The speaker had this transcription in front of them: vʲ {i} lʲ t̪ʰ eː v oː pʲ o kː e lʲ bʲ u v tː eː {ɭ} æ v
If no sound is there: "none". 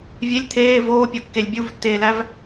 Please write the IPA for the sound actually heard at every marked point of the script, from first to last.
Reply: e, l

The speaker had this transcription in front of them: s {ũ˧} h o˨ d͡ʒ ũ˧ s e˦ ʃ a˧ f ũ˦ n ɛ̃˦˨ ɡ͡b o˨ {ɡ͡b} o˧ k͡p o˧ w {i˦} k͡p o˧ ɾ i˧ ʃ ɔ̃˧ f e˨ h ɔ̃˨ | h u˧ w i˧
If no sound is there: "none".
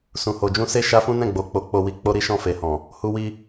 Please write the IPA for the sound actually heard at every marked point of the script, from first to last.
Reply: ũ˨, k͡p, i˧

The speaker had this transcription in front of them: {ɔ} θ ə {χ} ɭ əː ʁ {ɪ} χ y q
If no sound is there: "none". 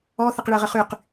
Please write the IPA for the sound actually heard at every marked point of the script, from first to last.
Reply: ɔ, q, ə

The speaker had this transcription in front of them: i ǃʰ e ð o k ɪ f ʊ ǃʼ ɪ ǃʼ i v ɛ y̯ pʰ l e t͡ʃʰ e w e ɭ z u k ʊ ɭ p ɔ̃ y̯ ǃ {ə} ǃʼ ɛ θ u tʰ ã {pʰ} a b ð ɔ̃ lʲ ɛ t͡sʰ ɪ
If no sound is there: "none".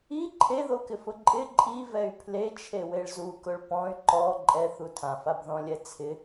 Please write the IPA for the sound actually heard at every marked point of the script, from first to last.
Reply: ɔ, f

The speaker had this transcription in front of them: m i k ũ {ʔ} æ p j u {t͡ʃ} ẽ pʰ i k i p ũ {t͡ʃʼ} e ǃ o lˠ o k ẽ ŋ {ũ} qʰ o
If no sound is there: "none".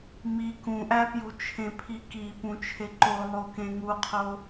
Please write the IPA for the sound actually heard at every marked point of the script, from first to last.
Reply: ʔ, t͡ʃʰ, t͡ʃʰ, u

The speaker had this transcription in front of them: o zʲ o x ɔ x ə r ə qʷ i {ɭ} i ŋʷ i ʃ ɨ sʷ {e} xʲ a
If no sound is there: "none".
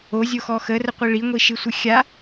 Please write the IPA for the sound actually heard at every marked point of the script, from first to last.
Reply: ɭ, ɨ

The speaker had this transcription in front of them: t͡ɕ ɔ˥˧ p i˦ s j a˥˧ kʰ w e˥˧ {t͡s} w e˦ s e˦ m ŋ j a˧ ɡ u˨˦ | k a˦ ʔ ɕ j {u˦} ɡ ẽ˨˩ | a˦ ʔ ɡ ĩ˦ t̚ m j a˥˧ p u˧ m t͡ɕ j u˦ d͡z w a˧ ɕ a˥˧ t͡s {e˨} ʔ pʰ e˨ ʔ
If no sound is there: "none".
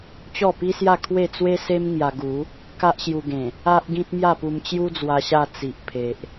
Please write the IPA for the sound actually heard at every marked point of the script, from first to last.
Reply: t͡s, u˧, i˨

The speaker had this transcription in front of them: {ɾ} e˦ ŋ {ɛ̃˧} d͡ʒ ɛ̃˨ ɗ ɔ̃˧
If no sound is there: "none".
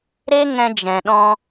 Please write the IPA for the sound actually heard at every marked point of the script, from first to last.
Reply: ɾ, ɛ̃˧

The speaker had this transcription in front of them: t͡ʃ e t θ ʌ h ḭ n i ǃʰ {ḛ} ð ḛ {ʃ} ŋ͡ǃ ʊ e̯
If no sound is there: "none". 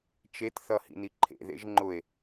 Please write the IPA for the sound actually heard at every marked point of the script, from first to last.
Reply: ḛ, ʒ

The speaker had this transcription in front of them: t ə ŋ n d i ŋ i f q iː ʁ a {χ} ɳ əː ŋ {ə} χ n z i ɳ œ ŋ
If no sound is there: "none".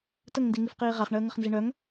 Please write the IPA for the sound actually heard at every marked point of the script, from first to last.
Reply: χ, ə

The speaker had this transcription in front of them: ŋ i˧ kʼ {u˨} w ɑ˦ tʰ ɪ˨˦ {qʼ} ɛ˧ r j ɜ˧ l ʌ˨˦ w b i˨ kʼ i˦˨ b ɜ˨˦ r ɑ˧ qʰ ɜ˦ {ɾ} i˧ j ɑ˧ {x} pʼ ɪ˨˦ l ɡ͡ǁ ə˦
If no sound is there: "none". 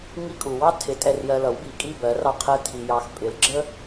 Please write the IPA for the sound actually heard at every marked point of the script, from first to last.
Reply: u˨, tʼ, tʰ, x

